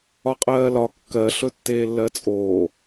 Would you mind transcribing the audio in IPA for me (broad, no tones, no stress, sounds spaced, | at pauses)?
ɒ qʼ ɜː l ɒ kː ɜ ɬ ɵ tː eː lː ɜ t͡sʼ oː